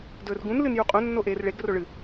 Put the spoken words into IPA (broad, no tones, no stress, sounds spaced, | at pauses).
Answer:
d ɵː r ɡ ũ n l ɨ n j u qʼ õ nː o ʔ eː r ɭ e ɡ r o ɭ ɨ